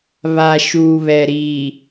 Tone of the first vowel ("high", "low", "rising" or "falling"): low